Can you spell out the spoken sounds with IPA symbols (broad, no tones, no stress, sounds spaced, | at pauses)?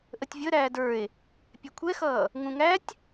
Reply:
ʔ ə tʲ vʲ ə ɾ æː d ə˞ e̯ | pʲ ɛ kʷʰ ɛ x ʌː | ŋ ũ ŋ æ tʲ